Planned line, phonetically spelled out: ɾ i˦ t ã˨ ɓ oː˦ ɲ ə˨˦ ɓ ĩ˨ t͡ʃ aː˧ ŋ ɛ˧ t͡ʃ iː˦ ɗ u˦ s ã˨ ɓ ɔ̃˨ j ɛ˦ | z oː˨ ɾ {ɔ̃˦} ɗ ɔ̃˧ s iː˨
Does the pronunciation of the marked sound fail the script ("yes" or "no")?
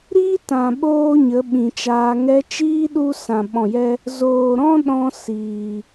no